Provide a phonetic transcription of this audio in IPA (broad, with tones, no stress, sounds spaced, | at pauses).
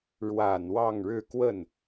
ɻ w a˨˩ n w ɑ˥˧ ŋ ɻ ɻ̩˥˧ k w ə˥˩ n